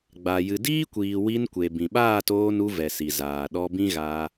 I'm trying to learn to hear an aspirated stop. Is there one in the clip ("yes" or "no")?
no